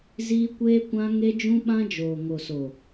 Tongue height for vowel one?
high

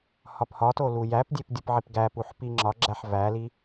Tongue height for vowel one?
low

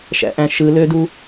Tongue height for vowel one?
low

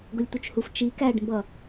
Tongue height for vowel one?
high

